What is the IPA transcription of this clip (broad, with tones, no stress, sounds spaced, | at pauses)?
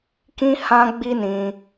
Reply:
k ĩ˦ h ã˦ ɡ͡b i˦ n ĩ˧